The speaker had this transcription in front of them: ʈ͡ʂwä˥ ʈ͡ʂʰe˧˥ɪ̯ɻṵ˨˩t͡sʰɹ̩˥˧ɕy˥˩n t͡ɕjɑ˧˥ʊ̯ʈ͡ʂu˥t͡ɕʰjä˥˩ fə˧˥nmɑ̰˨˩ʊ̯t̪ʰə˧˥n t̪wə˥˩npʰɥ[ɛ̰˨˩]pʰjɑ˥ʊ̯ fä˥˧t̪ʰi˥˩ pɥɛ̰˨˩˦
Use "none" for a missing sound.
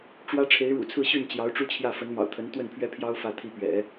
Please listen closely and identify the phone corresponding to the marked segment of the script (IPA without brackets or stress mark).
ɛ˥